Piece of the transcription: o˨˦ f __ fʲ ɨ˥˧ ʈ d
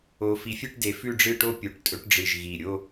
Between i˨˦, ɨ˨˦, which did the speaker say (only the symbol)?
i˨˦